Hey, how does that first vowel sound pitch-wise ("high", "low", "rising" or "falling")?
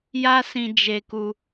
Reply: high